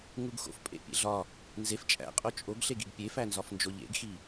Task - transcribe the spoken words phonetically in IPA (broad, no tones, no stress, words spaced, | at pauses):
ŋuɡxo̰f pʼḛpʲḛɮɒ | nzef t͡ʃʼæ̰qʼo t͡ʃʼoɡɬeɡiɡ pʲefænzɒfnd͡ʒo ʎḛɡxi